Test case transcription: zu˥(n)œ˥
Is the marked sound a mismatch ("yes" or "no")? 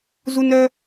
no